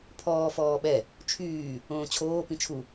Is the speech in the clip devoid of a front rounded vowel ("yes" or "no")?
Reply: no